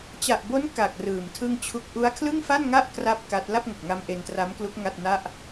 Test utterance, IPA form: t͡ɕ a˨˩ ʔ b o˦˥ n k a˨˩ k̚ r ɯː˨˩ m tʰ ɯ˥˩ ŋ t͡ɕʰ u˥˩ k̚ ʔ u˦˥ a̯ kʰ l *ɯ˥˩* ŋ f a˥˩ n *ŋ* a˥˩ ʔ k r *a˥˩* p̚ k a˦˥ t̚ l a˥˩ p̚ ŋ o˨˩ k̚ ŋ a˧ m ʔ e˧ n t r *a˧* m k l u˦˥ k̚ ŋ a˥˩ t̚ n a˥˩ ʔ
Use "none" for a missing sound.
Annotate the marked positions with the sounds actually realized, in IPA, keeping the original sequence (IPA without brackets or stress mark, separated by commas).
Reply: ɯ˥˩, ŋ, a˦˥, a˦˥